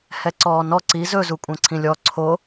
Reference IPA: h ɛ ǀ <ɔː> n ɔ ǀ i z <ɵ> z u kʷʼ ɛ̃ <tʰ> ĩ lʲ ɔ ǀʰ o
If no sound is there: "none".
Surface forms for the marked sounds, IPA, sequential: ɔː, ɵ, ǀʰ

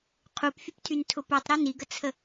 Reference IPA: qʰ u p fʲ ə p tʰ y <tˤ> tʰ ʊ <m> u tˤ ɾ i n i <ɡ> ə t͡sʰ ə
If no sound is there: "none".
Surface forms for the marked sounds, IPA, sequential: n, p, ɡ

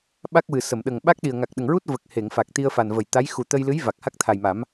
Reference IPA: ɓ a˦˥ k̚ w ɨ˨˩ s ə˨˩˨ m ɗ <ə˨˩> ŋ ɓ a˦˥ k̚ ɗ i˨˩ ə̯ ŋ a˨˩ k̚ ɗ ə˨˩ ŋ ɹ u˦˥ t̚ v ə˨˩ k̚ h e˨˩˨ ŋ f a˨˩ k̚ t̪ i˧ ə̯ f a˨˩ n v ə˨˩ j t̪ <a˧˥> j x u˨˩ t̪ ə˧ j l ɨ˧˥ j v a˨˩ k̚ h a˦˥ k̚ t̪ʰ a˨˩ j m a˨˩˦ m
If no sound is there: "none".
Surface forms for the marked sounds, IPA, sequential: ə˨˩, a˧˥

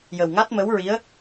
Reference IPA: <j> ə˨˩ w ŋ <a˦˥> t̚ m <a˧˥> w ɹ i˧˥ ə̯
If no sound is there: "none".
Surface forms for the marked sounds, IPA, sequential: j, a˦˥, ə˧˥

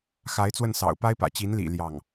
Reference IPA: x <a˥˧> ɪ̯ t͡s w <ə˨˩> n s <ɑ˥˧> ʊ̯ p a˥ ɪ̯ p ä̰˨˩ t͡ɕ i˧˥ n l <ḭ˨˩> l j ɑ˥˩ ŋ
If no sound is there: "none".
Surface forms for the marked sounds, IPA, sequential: a˧˥, ə˥˩, ɑ̰˨˩, ḭ˨˩

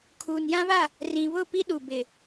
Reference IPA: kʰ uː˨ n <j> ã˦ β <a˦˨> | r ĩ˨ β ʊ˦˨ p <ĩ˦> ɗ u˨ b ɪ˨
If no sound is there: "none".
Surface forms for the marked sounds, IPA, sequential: j, a˦˨, i˦

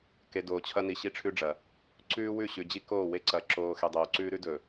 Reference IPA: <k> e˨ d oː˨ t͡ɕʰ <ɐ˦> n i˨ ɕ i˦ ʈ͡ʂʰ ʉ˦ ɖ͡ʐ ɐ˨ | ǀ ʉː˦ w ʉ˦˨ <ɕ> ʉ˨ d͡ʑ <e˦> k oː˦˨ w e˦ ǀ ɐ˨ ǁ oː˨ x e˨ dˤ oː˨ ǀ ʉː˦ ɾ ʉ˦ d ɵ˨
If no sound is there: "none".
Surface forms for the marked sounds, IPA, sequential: k, ɐ˦, ɕ, i˦

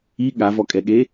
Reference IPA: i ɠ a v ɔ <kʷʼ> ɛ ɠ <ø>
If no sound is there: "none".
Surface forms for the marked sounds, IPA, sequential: kʼ, e

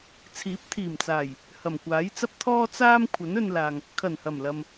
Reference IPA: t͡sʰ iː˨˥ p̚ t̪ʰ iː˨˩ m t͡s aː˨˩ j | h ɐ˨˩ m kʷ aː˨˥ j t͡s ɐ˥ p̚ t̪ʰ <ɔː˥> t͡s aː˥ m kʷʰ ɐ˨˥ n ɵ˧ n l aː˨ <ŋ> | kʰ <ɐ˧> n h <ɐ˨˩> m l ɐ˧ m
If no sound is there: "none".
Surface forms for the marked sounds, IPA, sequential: ɔː˥, ŋ, ɐ˨˩, ɐ˨˩

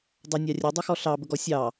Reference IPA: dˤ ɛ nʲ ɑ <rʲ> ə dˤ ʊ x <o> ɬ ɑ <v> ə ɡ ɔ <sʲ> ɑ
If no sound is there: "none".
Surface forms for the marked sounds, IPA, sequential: rʲ, ɔ, b, sʲ

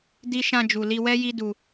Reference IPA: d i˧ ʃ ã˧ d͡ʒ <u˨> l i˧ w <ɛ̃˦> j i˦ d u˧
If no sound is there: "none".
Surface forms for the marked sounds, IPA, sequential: u˨, ɛ˦

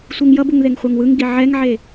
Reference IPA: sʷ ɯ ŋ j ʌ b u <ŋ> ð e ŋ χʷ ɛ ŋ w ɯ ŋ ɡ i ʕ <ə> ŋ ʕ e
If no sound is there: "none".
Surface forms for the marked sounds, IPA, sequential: ŋ, ɛ

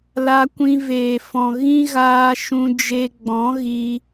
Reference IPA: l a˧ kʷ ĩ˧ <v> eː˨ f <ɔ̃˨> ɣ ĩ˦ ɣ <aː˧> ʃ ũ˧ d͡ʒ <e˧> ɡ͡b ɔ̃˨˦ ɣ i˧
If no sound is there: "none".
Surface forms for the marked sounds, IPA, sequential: v, ɔ̃˨, aː˧, e˧

